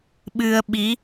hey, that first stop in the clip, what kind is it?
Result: implosive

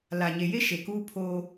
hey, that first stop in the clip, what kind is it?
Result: plain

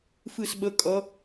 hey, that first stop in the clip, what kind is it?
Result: implosive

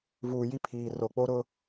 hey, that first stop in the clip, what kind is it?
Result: aspirated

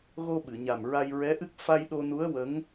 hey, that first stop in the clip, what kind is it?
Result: implosive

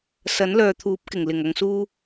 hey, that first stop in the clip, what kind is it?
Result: aspirated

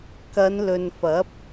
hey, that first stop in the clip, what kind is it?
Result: plain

